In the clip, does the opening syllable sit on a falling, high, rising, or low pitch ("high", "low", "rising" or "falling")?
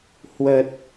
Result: low